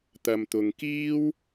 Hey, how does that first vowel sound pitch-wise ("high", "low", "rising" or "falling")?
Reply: low